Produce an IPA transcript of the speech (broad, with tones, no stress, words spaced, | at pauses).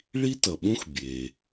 ɭi˥ tʌ˩ɓũ˥x bʲe˩